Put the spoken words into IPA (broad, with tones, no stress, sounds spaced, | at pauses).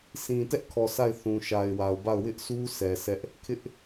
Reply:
s ĩ˨ t ɛ˦ ʔ kʰ ɔ˨ sʰ a˦˨ ɪ̯ θ ũ˨ ʃ a˨ ɪ̯ w a˨ ʊ̯ b a˦˨ ʊ̯ w ɪ˦ ʔ sʰ u˦ s ɛ˨ sʰ ɛ˦ ʔ | kʰ ɪ˦ ʔ